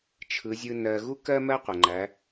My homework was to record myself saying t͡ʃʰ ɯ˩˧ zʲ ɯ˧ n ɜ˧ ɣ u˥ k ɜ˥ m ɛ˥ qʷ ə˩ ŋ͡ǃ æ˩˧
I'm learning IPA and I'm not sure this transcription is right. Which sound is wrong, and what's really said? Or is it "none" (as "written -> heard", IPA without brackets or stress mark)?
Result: ɛ˥ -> ɜ˥